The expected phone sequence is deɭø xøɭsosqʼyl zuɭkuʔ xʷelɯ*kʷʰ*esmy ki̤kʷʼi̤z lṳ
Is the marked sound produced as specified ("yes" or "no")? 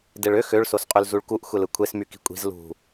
yes